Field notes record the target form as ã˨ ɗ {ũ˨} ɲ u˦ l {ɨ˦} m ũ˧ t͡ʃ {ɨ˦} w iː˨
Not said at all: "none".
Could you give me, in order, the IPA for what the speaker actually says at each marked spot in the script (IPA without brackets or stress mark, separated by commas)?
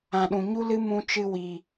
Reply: ũ˨, ɨ˦, ɨ˧